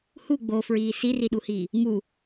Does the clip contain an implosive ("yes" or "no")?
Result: yes